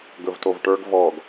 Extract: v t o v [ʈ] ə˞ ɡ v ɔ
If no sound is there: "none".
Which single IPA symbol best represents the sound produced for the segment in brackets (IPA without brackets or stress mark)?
ʈ